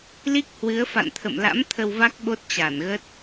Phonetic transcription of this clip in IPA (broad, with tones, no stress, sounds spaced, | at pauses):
l i˦˥ k̚ h w ɨ˨˦ ə̯ f a̰˧˨ n t̪ʰ ə̰˧˨ m l a̰˧˥ m t̪ʰ ə˧ w v a˦˥ k̚ ɓ o˦˥ t̚ t͡ɕ a˧˩ n ɣ ə˦˥ t̚